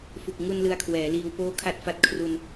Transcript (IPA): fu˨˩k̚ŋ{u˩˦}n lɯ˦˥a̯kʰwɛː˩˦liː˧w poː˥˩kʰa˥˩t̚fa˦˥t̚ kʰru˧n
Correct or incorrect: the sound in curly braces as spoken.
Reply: incorrect: u˧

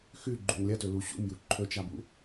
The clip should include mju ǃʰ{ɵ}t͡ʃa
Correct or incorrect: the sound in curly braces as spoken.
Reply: correct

